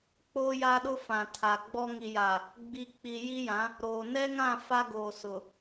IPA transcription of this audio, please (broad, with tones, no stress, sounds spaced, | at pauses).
k͡p oː˦ j aː˦ ɗ ʊ˦ f ã˨ tʰ a˨ ɡ͡b ɔ˦ ŋ i˨ j a˨ | ɡ͡b i˨ k͡p i˨ j i˦ j ã˨˦ | ɾ oː˨ n ɛ˦ ŋ ã˦˨ f a˦ ɡ oː˨ s ʊ˨